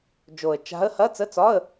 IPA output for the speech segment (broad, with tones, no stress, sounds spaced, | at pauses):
d͡ʒ o˨˩ ə̯ t͡ʃ a̤˧˥ ə̯ h ɐ˧˥˧ t͡s ə˧˥˧ t͡s ɒ˧˥˧ ə̯